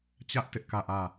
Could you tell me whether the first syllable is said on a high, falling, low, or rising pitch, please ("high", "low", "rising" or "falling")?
high